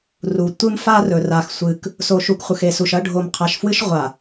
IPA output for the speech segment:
r u˨ tʷ ɨ˦ m f a˦ r ɵ˨ r a˨ x sʷ ɨ˨ k | s o˨ ʃ u˨ k χʷ ɨ˨ x e˨ s u˨ ʃ ɐ˦ ɖʱ o˨ m qʰ a˨ ʃ f w ɨ˦ ʃ ʁʷ a˨

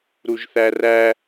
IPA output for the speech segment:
ɾ u ʒ θ æ r æ

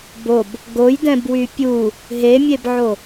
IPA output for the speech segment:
b o b | ɡ o j d ɛ̃ b w y pʲ u | ɦ e mʲ e b ʕ o

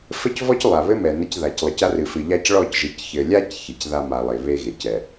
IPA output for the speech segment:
f ɘ˦ c v ɔ˦ c lˠ a˨ β ɘ˦ m ɛ˨ n ɘ˦ c ð a˨ c lˠ ɘ˨ c a˦ r ɨ˨ f ɨ˨ ʎ a˦ c ɭ ɔ˦˨ c ʒ ɨ˨ c ç ɘ˨ lʲ a˦ c ç e˨ c ð a˦ m a˨ lˠ e˨ β e˦ ɣ e˨ c ɛ˨

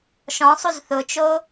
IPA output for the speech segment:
ʃ ɔ̃ sˤ u z θ ʊ t͡ʃ o

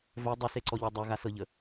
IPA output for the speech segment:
v œ dˤ œ s e ǀ ɔ ʎ ɔ dˤ œ ɣ a s ɤ ʎ ə

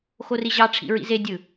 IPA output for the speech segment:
x o r i ʑ ɑ ʈ͡ʂʰ ḭ ɹ ḭ z e dʲ ɯ

